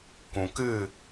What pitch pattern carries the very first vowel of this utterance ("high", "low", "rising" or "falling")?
low